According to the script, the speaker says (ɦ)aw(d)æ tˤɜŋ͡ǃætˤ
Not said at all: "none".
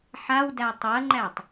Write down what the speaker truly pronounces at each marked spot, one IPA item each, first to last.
ħ, d

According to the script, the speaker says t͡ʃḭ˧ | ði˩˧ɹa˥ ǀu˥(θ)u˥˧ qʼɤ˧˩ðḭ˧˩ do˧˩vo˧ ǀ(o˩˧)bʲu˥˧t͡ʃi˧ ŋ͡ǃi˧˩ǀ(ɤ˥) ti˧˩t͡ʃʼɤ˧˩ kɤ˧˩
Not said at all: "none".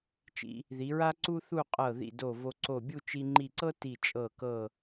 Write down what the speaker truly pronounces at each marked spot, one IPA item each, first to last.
θ, o˧˩, ɤ˥

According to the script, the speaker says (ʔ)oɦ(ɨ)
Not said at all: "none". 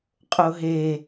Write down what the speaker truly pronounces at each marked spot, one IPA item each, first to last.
qʼ, e

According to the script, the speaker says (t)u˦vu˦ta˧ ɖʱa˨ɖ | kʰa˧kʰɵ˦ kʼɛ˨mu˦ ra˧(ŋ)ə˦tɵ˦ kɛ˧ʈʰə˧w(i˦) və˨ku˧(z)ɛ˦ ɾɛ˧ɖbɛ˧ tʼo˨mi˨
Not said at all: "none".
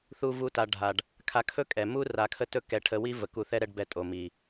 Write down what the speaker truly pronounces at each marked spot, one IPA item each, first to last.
θ, kʰ, i˦, θ

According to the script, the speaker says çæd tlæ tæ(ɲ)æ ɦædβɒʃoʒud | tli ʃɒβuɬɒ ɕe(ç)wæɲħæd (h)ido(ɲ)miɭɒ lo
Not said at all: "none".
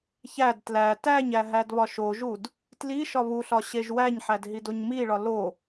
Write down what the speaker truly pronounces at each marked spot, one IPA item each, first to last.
ɲ, ʒ, ɦ, ɲ

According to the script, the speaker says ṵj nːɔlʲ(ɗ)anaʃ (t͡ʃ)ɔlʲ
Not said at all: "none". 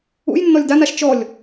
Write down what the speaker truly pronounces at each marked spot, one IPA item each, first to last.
d, t͡ʃ

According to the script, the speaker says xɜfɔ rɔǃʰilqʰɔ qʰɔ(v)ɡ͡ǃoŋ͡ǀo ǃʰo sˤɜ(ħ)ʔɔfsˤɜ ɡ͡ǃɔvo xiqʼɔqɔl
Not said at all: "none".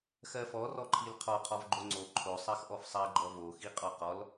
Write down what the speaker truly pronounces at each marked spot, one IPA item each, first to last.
v, x

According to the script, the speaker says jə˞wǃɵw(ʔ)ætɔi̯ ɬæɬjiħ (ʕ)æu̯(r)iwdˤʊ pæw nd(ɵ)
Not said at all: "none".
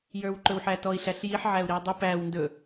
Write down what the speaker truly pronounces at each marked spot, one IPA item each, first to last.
ħ, ʕ, ɾ, ɵ

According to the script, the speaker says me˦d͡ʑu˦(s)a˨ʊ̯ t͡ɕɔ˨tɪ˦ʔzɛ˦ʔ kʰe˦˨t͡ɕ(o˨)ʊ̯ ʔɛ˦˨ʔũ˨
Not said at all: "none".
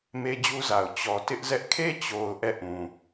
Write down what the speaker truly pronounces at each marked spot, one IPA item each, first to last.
z, o˨

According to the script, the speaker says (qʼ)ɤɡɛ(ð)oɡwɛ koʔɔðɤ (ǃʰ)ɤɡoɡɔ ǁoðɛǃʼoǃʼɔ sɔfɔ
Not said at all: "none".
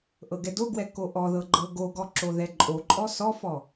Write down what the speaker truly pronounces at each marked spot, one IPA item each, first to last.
ʔ, d, ɡ͡ǃ

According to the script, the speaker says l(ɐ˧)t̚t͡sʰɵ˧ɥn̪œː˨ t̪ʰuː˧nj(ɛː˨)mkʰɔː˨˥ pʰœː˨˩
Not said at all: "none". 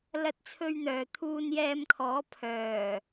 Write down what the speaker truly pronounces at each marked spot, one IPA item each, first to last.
ɐ˧, ɛː˧

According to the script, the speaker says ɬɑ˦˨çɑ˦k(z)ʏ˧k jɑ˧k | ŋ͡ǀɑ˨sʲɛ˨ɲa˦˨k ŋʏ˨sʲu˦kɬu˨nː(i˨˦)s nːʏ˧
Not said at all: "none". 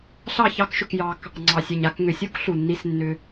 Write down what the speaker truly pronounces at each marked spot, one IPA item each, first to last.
ʃ, i˧

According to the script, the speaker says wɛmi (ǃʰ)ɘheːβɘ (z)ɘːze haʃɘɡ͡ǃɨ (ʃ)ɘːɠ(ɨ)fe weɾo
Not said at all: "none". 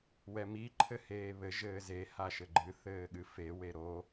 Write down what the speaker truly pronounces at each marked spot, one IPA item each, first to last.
ǃʰ, ʒ, θ, ɨ

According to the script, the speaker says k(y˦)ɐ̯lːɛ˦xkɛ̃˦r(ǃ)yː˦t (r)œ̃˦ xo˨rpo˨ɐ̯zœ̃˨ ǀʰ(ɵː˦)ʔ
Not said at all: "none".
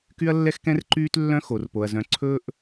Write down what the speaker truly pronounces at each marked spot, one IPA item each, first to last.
y˦, ǃ, lː, ɵː˦

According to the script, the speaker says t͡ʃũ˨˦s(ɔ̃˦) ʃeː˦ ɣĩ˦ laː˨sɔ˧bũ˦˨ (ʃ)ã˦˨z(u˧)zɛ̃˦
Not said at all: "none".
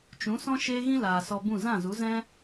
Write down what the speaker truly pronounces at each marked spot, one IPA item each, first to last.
ɔ̃˦, z, u˨˦

